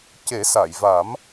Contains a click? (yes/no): no